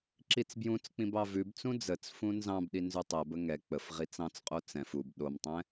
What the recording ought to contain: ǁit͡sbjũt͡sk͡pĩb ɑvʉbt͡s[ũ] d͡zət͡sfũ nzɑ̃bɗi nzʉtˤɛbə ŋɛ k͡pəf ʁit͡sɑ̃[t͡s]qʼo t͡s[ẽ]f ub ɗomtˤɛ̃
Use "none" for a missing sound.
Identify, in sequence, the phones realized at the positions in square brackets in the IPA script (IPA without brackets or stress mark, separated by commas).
ũ, t͡s, ɛ̃